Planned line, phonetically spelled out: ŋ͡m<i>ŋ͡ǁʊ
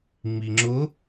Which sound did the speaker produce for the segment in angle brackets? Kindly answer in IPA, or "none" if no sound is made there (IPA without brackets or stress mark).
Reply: i